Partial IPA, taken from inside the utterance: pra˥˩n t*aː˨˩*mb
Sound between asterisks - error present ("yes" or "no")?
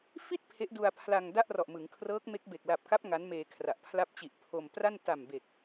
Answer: yes